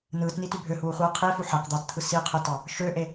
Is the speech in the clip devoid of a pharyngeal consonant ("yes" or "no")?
no